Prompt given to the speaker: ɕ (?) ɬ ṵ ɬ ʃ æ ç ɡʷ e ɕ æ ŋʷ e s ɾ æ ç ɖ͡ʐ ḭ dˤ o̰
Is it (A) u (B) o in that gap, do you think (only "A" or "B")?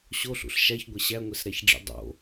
B